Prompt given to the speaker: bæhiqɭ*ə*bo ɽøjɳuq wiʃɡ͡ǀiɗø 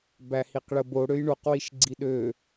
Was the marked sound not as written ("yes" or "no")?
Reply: no